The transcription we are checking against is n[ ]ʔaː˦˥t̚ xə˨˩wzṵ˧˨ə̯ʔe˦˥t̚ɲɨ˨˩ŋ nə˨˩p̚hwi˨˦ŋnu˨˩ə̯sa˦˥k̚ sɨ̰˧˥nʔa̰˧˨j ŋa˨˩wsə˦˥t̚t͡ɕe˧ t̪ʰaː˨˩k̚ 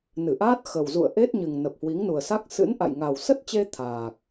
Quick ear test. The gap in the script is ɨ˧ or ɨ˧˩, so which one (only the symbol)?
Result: ɨ˧˩